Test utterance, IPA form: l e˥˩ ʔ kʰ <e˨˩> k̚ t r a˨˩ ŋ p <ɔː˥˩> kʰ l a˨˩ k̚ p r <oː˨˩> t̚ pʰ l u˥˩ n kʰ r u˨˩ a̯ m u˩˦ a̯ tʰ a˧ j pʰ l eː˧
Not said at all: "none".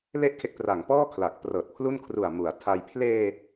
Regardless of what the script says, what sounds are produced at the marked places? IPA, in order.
e˦˥, ɔː˥˩, ɤː˨˩

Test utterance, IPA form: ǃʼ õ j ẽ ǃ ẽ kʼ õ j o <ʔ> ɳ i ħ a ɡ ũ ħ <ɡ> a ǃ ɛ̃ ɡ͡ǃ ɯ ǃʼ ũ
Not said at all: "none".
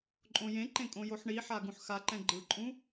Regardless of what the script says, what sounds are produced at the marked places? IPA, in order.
ħ, x

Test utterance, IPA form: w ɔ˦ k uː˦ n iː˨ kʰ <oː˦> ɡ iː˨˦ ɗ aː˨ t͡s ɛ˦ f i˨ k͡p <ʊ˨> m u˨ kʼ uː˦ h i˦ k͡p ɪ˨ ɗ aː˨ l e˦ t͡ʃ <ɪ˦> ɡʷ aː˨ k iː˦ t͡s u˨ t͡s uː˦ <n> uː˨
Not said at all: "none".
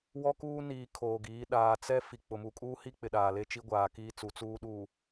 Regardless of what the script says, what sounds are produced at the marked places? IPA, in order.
oː˨, ʊ˨, i˦, ɗ

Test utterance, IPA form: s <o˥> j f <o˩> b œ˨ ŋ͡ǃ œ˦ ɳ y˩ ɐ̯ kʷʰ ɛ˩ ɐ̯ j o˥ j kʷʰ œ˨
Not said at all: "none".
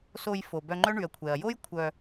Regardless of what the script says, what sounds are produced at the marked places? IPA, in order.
o˨, o˩

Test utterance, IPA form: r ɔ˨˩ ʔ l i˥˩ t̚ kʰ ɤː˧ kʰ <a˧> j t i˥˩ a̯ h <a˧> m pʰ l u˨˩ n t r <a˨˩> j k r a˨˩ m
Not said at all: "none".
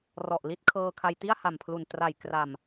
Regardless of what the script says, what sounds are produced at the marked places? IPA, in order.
a˧, a˨˩, a˨˩

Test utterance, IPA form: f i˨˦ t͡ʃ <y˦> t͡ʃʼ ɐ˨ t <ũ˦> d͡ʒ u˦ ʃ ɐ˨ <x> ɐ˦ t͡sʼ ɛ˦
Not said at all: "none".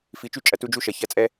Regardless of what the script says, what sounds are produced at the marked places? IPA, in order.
y˦, u˦, ç

